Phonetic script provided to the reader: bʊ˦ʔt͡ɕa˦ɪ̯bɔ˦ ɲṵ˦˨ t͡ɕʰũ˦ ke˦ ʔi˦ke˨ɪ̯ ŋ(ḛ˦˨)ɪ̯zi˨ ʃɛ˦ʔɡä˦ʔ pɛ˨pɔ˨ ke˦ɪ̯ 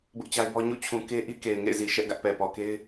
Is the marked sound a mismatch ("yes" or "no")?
no